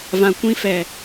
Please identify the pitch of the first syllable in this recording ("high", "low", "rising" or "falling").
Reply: low